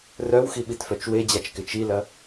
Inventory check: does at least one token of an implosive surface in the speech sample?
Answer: yes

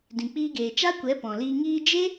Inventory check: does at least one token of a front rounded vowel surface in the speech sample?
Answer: no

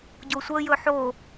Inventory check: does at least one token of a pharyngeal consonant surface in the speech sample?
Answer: yes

